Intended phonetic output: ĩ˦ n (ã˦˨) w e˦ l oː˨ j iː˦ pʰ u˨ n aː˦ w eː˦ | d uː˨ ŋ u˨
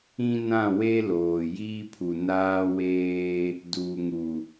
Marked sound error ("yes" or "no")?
no